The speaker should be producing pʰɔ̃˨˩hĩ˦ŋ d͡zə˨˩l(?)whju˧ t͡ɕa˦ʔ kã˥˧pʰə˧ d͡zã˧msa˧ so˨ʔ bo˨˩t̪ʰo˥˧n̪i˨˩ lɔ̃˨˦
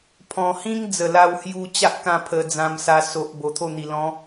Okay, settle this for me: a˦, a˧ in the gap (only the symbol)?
a˧